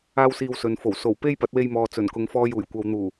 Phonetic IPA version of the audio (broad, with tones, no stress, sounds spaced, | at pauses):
aː˥ w s iː˧ w s ɵ˨ n f o˨˩ w s o˨˩ w p e˥ j p ɐ˨˥ t̚ w e˧ j m ɔː˨ t͡s ɵ˨˩ n k ʊ˨ ŋ f ɔː˧ j uː˨˩ j kʷ ɐ˨ w n̪ uː˨˩